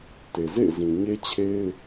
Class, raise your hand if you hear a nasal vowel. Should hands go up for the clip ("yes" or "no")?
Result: yes